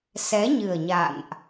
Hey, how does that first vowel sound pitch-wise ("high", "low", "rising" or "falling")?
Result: rising